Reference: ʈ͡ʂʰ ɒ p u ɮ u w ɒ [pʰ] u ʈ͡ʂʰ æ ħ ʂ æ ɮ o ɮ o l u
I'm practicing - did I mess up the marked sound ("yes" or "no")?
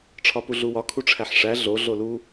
yes